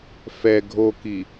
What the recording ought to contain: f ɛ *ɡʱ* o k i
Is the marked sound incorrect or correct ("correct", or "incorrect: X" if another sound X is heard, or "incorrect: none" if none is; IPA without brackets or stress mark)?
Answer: correct